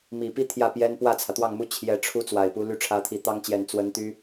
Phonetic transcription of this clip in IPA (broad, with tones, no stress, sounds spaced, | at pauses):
m i˨˩ p i˥˧ t̪ʰ j ä˥˩ p j ɛ˥ n p w ä˥˩ t͡sʰ ä˩ t̪ w ɑ˥˩ ŋ m u˥ t͡ɕʰ j ɛ˧˥ ʈ͡ʂʰ u˥ t͡s w a˨˩ ɪ̯ p u˧˥ l y˥ ʈ͡ʂʰ ä˧˥ t̪ʰ i˨˩ t̪ ɑ˥ ŋ t͡ɕ j ɛ˨˩ n t͡s w ə˧˥ n t̪ y˥